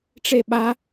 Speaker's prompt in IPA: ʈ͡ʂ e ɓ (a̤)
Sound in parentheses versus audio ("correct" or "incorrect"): incorrect